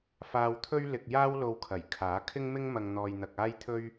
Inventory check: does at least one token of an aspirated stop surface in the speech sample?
yes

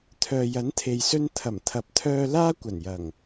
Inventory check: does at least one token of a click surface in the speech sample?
no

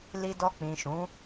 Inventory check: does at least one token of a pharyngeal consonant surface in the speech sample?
no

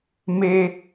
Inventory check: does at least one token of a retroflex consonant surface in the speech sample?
no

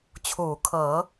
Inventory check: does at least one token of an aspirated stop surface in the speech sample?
yes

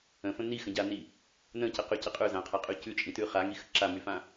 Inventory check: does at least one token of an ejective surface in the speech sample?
yes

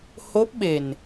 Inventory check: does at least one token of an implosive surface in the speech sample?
yes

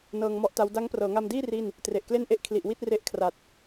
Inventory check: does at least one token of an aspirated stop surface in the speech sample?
yes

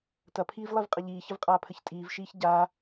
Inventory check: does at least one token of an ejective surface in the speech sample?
yes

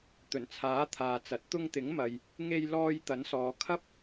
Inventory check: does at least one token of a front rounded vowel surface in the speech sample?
no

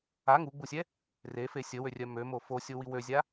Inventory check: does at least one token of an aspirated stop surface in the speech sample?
no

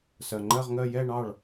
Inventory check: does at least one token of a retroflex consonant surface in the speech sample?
yes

